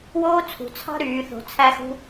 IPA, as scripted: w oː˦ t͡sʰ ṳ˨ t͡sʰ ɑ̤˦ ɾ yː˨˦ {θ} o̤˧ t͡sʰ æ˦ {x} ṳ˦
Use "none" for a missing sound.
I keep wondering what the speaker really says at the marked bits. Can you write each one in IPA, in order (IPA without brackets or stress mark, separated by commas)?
θ, x